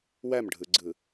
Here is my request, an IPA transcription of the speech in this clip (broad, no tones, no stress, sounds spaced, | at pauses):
w æ m ɖʱ ɯ ɡ͡ǀ ɯ